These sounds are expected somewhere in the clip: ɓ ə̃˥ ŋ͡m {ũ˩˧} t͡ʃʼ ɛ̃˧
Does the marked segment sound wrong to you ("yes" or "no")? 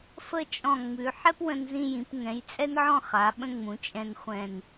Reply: no